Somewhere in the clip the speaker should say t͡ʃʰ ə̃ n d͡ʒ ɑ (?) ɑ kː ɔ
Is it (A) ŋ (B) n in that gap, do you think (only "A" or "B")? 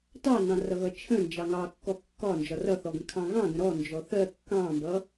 A